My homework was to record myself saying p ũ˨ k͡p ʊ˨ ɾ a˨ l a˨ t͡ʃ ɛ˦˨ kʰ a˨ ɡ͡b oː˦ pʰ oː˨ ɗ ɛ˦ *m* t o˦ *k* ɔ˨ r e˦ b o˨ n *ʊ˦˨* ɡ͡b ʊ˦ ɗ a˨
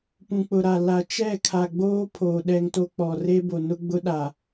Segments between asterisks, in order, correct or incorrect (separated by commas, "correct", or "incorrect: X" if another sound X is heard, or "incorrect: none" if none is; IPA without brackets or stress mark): incorrect: ŋ, incorrect: k͡p, incorrect: ʊ˦